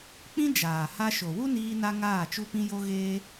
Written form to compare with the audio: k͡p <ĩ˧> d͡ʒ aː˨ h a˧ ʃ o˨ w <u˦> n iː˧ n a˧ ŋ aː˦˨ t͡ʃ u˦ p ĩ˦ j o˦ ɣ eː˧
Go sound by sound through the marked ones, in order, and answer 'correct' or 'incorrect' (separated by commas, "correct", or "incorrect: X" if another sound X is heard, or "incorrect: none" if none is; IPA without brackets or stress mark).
correct, correct